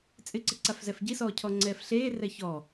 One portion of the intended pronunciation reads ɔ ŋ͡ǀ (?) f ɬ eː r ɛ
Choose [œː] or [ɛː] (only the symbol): ɛː